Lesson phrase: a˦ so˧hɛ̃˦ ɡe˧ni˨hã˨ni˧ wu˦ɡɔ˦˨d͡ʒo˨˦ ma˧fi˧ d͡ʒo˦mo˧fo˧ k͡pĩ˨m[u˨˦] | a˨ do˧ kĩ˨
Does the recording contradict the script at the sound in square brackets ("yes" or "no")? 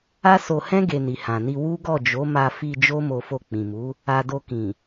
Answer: no